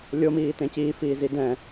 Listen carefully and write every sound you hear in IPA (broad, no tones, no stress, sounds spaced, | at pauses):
lʲ o m iː t ẽ c iː f iː z i d ɛ̃